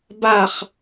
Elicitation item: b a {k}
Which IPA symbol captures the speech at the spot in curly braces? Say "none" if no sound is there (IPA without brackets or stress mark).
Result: χ